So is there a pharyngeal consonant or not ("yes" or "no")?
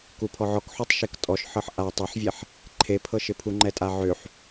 yes